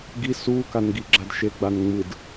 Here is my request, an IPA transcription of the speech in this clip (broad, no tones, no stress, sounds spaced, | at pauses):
ɡ i s u k a n ɡ i ɡ͡ǁ a d ʃ e ɡ͡b a n ŋ͡m ɯ d